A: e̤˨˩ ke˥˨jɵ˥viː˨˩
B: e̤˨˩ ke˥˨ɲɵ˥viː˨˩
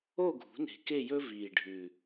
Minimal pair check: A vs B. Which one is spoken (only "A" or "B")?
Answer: A